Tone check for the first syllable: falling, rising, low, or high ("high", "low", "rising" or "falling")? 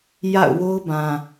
falling